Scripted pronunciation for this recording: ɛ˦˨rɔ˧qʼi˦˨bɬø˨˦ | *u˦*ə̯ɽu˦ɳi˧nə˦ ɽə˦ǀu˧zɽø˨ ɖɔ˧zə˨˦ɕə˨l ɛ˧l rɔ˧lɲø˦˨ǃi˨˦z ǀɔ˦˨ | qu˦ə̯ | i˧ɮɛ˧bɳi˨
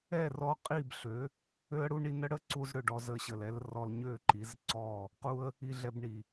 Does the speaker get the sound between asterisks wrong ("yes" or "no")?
yes